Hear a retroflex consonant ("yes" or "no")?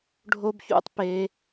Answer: yes